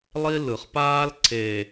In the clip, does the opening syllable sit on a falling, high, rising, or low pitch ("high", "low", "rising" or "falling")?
high